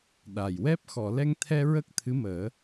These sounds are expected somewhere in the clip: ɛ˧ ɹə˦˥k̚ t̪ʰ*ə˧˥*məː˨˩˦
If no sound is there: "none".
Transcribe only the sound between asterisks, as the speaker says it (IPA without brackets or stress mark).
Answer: ɨ˧˥